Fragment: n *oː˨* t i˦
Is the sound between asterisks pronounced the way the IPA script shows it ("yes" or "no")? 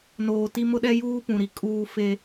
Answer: yes